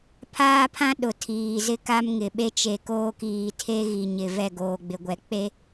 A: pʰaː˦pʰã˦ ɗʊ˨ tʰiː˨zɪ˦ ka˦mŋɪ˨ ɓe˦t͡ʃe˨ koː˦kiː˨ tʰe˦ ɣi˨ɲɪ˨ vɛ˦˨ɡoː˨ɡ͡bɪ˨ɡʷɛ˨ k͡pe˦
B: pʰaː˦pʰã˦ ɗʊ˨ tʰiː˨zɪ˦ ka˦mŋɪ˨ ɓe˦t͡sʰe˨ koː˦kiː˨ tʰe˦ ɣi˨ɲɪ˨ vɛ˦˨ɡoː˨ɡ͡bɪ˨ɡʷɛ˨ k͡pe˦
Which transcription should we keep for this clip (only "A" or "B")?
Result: A